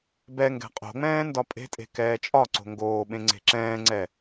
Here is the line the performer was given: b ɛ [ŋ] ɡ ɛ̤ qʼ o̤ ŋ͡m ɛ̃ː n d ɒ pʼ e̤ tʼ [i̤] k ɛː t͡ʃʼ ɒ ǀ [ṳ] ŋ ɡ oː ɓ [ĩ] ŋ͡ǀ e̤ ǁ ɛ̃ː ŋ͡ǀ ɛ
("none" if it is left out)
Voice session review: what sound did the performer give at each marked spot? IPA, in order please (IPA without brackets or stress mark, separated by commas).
ŋ, e̤, o̤, ẽ